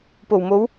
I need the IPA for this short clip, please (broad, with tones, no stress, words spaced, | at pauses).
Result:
po˨˩wmo˨˧w